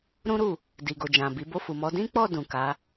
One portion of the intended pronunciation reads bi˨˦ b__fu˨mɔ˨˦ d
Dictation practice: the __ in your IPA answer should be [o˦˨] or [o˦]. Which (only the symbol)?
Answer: o˦˨